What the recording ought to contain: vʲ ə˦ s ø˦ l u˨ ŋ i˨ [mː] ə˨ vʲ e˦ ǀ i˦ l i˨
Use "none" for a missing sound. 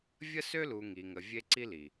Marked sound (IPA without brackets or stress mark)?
ŋ